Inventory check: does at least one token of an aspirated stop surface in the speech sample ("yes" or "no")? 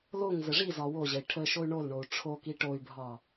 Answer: yes